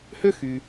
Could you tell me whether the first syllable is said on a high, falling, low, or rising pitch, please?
high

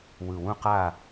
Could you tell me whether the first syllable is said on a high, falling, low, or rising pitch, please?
low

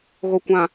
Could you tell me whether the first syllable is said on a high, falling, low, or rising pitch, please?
low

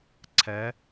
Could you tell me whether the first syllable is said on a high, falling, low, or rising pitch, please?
rising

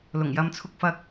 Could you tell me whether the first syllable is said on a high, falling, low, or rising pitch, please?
low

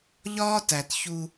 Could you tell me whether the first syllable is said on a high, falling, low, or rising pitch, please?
high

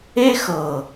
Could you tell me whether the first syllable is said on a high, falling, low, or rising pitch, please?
high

